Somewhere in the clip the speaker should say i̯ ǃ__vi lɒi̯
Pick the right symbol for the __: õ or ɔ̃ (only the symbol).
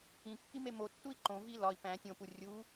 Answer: õ